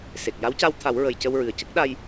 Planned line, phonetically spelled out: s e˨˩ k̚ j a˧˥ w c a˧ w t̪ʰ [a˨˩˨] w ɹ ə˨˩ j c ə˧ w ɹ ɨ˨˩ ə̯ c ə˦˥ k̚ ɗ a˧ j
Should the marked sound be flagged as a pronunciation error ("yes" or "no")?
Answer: yes